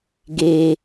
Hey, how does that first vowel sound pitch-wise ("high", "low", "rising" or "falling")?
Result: low